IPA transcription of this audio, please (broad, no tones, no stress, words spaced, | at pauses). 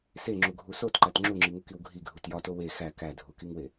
seŋ͡ǁuɡʱu sotǃæt ŋ͡ǁuŋ͡ǁiŋukiw ɡʱiɡʱut jɒto we xæ kædʱukiŋwe